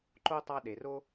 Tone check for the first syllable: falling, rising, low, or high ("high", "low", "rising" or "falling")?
high